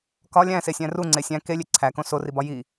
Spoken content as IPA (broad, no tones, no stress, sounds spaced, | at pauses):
k ɒ lʲ æ̃ s e sʲ æ̃ r u ŋ͡ǀ e sʲ æ̃ k e lʲ e ǀʰ æ k õ s o r i b ɒ j i